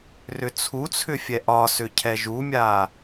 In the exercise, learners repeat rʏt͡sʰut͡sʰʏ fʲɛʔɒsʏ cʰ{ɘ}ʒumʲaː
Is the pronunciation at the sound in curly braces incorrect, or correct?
incorrect